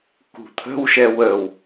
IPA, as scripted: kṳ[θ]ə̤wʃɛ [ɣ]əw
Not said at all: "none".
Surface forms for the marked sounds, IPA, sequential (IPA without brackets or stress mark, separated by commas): t̪ʰ, w